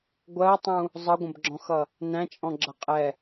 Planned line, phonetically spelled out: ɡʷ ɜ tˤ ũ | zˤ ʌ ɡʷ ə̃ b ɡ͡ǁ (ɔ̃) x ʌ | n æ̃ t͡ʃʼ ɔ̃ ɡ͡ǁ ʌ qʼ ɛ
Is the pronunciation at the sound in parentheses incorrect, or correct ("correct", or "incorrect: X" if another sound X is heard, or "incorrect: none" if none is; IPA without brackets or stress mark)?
correct